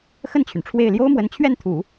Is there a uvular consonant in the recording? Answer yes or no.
no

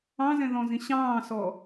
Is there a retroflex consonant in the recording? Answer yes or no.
no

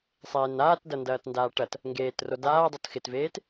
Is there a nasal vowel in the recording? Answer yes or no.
no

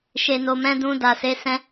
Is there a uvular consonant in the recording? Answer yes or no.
no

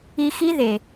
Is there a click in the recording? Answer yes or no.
no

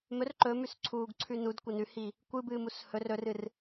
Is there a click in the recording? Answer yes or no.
yes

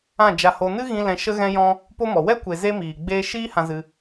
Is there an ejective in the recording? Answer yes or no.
no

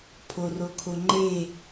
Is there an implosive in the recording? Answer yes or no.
no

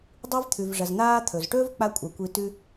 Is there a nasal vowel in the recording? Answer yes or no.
no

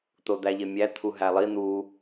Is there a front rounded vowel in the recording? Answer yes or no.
no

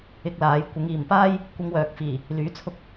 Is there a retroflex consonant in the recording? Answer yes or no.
no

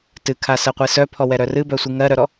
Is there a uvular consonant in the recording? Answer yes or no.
yes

